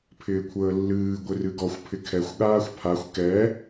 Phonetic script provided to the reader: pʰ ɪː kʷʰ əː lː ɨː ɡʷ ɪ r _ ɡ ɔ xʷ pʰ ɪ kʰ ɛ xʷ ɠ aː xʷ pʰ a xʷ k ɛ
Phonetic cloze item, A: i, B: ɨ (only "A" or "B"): B